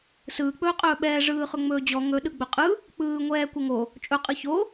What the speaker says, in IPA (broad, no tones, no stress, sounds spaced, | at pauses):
s ɯː k͡p ɵː qʼ ɵː ɓ ɛː ʐ ɯː χ ɵ ŋ͡m ɵː d͡ʑ ɔ ŋ ɵ ɗ ɯ ɡ͡b ɵ qʼ ɯ | k͡p ɯː ŋʷ ɛː kʷ ɛ ŋ o | t͡ʃʼ ɵ qʼ ɯ ç o